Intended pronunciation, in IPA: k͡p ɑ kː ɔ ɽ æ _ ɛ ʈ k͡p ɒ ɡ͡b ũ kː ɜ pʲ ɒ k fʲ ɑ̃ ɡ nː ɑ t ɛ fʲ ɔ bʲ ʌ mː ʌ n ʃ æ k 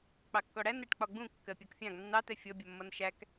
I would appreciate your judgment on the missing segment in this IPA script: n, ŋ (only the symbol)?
n